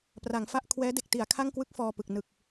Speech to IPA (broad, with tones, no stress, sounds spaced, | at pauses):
p r a˩˦ ŋ f a˥˩ ʔ kʰ w ɛː˦˥ d e˨˩ k̚ t i˩˦ a̯ kʰ a˥˩ ŋ k w ɯ˦˥ k̚ f ɔː˧ p ɯ˨˩ k̚ n ɯ˨˩ k̚